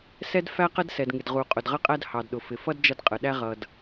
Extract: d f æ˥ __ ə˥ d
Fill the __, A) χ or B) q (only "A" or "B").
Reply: B